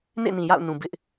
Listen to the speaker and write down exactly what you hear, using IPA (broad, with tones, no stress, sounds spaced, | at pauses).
n ḛ˦˨ n ĩ˨ j a̰˦˨ ʊ̯ n ũ˨ b ɪ˦ ʔ